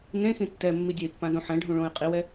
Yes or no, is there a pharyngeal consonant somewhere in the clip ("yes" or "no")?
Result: yes